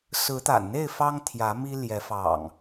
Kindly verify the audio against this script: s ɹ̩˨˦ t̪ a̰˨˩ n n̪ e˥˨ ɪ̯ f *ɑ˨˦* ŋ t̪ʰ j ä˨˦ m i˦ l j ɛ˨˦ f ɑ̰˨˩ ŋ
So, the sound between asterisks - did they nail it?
no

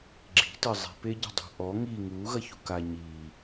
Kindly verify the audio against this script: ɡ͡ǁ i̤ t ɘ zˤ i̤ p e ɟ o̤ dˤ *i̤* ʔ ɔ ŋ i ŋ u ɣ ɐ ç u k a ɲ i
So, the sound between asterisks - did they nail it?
yes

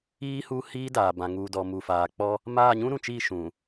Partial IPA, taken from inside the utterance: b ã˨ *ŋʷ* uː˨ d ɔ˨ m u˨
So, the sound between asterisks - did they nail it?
no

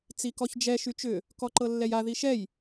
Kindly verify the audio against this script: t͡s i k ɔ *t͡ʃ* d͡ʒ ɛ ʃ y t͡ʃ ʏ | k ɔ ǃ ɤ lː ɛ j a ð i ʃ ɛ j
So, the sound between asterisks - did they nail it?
no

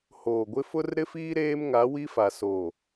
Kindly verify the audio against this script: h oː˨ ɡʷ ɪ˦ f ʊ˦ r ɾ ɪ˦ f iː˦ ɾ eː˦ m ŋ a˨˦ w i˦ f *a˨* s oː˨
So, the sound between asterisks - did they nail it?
yes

